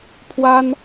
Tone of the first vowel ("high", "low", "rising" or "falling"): high